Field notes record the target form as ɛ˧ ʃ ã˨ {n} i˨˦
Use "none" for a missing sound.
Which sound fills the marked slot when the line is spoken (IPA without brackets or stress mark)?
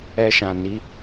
n